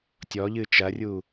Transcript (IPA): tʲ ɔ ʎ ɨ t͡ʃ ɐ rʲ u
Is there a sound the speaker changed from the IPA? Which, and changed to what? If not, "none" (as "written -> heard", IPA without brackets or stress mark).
none